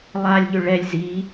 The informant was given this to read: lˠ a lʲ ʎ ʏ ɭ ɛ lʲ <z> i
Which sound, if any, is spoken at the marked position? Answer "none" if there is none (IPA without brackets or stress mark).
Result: z